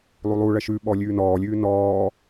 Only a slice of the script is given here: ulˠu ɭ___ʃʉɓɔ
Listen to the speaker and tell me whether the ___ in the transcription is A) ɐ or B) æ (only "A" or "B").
A